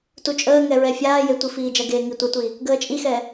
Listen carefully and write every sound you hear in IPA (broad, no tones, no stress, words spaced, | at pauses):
tut͡ʃʼəːŋɛ ɹɛfʲaːje tʷifiːd͡ʒɐɡeː ŋitʷɛtʷi | ɡəːt͡ʃʼixɛ